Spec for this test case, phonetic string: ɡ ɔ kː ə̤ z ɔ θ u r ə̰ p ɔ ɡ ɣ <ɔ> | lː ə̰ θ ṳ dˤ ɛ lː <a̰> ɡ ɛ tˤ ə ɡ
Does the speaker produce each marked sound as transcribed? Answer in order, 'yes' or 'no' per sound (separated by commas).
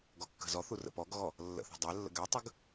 yes, no